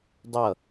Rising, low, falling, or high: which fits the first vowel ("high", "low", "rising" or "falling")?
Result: falling